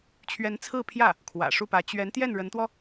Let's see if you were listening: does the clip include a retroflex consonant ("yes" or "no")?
yes